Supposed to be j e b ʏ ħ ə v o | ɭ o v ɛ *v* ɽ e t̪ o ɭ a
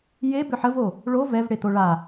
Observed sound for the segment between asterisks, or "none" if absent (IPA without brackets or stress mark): v